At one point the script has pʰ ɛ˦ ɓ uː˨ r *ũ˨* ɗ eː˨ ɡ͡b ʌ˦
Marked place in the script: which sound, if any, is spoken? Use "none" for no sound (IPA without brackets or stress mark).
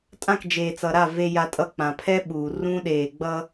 ũ˦